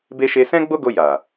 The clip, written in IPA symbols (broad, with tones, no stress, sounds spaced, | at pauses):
b e˦ ʃ e˧ s ɛ̃˦ ɡ͡b o˦ ɡ o˧ j a˨